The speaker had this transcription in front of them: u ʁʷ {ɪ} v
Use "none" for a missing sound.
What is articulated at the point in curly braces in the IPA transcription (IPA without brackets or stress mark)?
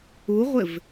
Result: ɪ